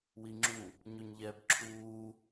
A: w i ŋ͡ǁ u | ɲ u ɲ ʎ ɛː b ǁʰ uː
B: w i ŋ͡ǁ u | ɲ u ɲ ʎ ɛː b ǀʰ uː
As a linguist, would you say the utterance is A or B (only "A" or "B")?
A